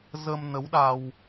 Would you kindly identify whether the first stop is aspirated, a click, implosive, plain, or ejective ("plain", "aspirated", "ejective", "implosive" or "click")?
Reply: implosive